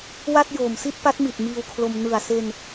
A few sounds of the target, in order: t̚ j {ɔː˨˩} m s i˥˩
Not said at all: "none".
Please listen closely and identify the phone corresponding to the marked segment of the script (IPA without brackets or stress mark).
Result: oː˨˩